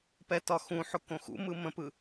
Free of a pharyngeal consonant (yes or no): no